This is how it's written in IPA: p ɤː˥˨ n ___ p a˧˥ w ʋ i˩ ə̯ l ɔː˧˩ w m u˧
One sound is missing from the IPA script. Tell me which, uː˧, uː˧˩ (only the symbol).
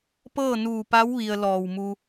uː˧˩